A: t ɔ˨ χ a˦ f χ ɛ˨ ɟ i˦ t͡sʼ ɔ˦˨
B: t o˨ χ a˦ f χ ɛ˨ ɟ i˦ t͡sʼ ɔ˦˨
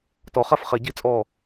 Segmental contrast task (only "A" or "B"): A